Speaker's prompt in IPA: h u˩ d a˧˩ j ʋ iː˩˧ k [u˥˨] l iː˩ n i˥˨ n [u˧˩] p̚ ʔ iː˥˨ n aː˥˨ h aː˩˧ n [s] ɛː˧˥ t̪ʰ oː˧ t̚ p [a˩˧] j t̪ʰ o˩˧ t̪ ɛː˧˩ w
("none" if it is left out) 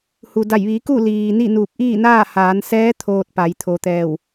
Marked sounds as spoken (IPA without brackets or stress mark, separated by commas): u˥˨, u˧˩, s, a˩˧